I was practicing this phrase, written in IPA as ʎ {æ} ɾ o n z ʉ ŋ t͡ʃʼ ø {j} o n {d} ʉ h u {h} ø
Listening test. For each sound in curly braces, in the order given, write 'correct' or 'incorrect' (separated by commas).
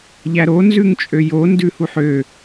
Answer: correct, correct, correct, incorrect